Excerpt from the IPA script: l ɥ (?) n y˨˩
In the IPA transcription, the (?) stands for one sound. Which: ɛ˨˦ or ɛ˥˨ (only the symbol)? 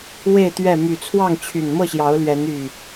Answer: ɛ˨˦